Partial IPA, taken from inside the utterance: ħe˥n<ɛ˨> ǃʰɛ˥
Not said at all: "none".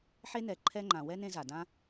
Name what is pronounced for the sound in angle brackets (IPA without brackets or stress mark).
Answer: ɛ˨